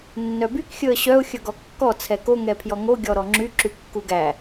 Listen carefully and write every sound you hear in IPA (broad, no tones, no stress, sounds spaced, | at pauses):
nː œ b y k xʲ ɵ ə̯ ɕ œ ʊ̯ xʲ ɵ ɡ ɔ kː ɔ t͡sʰ ɛ k o ŋ ɛ pʰ j ɔ ŋ o ɡʲ ɔ ɾ ɔ ŋ͡ǁ y ǁ y kː u ɡ æ